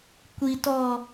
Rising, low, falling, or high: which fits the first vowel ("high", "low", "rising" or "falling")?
low